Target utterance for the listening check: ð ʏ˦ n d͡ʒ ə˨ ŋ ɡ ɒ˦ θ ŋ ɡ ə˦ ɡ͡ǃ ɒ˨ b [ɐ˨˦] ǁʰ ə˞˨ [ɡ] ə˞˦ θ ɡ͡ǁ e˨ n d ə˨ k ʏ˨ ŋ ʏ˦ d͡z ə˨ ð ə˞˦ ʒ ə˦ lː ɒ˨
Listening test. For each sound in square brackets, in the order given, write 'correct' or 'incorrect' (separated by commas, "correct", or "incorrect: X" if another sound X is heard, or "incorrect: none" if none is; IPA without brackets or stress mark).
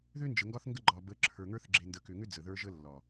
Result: incorrect: ə˨˦, incorrect: ŋ